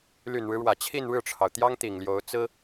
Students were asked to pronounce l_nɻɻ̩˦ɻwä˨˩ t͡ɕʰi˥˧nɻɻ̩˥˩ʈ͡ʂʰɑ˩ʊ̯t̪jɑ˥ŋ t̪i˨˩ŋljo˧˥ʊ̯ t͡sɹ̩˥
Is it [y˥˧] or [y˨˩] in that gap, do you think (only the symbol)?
y˨˩